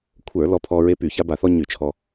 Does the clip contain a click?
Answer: no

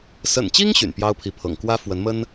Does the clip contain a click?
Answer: no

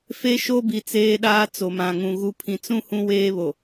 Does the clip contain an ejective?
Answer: no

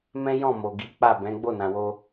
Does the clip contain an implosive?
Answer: no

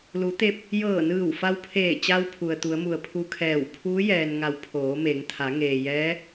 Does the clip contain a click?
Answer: no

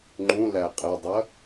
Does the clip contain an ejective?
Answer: yes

